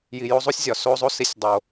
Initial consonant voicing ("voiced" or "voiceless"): voiced